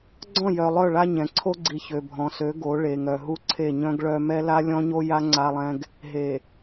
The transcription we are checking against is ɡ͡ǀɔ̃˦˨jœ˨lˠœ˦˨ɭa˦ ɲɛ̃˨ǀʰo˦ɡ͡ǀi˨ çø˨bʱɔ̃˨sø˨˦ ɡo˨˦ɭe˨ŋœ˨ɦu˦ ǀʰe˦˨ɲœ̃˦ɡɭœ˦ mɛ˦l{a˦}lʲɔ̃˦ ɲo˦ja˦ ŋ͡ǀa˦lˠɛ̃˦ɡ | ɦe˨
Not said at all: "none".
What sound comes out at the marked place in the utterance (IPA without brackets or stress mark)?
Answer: a˦